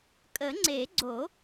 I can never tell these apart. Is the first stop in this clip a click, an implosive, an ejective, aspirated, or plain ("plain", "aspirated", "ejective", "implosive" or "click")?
ejective